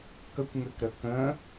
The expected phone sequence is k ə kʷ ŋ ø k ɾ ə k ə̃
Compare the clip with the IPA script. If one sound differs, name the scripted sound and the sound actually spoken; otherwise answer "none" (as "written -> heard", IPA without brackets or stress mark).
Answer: none